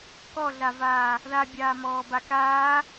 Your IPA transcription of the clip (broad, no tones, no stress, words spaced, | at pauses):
kɔɮavaː | ðabʲaːmɔːba kaː